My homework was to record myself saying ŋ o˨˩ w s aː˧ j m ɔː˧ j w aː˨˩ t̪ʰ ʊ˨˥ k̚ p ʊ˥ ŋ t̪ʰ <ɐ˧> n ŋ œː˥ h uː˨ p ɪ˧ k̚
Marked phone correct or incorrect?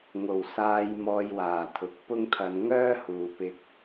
correct